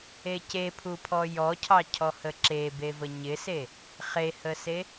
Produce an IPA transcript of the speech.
e c e pʰ u pʰ ɔ j ɔ cʰ ɑ cʰ ɔ h ə ǁ e b e v ə ɲ ɪ s e | χ e h ə s e

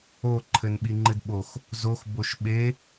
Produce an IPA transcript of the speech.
o ǃʰ ɘ n ɓ i ŋ͡ǃ ɨ d ɓ o x | z o x b o ʃ ɓ e

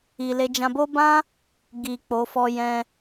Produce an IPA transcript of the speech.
i˧ l e˦ d͡ʒ ã˧ b o˦ b ã˦ | ɡ i˨ k͡p o˨˦ f ɔ˦ j ɛ̃˧

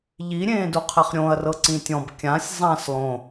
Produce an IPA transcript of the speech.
ʎ i ɾʲ ẽː d u qʰ ɛ χ ɾʲ õ ɐ̯ r ɤ ǀ ĩ tʲ ɔ̃ b kʲ ã sʲ zˤ ã s lˠ õ

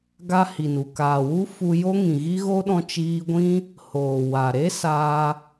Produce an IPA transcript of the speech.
ɡ a˦ h i˨ n u˨ k aː˨ w u˦ f u˧ j o˦ ŋ ĩ˨ ɣ i˦ ɣ o˦ ɗ ɔ̃˧ t͡ʃ iː˧ ɡʷ ĩ˦ | h oː˨ w a˨ ɾ e˦ s aː˧

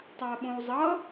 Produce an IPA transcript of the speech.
tˤ a ɓ õ u̯ zˤ ʌ

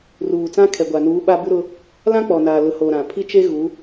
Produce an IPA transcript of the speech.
r uː˨ t͡s ã˦ kʰ ɛ˨ ɡʷ a˨ n uː˨˦ ɓ a˦ b u˦ ɾ ʊ˦ | l ã˦ k͡p ɔ˨ n aː˨ l ʊ˨˦ h o˨ ɾ ã˨ pʰ i˦ t͡ʃ e˦ ɣ u˨˦

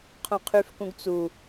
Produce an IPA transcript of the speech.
qʰ õ qʰ y f k ũ ɡ t͡s u

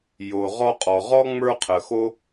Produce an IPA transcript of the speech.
j o˩ ʁ ɔ˦ qʼ ɔ˩ ʁ ɔ˥ ŋ͡m ə˞˦ qʰ ə˩ x o˦

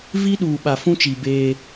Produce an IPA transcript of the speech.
v i˦ ɗ uː˨ ɓ a˨ f ũ˦ t͡ʃ i˨ b eː˦

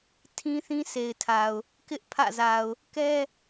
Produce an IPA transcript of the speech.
tʰ ĩ˦ θ ĩ˦ sʰ e˨ ɪ̯ tʰ a˨ ʊ̯ | k ɪ˦ ʔ pʰ ä̰˦˨ z a˨ ʊ̯ | k ɛ˦

